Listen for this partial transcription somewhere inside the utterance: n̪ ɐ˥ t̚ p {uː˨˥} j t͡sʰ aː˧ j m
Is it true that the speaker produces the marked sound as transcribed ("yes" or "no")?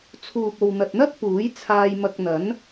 yes